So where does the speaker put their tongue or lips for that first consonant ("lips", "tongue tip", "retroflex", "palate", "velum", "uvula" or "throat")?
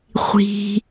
uvula